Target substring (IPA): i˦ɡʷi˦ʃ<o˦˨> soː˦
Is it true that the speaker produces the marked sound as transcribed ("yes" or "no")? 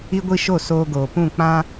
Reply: yes